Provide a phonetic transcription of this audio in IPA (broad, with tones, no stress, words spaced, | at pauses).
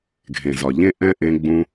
ɡʱẽ˨zɒ˨ ʎẽ˥ʔɛ̃˥ʔẽ˦ ɡ͡bũ˦